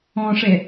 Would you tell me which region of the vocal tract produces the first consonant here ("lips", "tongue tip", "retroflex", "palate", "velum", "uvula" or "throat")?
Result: retroflex